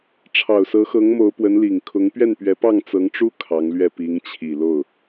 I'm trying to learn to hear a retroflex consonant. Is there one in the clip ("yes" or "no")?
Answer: yes